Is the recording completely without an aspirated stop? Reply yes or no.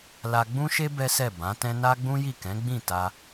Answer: yes